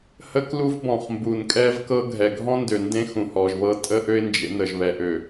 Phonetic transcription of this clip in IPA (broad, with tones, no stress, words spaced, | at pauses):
hə˦klu˦vbɔ̃˨χmbu˨n kʼɛ˦vkɤ˦ ɡʱɛ˨ɡʱɔ̃˦ndø˨ ndẽ˦ xũ˨hɔ˨ʒβɤ˦ tʼə˦ ʔø˦ɪ̯nd͡ʒḛ˨˦ nə˨ʒβɛ˨ʔø˨